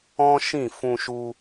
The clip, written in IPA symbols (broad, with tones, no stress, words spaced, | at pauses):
ɔ̃˦ʃĩ˦˨fũ˧ʃu˧